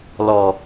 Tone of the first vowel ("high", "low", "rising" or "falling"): high